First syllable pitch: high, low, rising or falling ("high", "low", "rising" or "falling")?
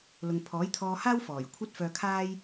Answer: low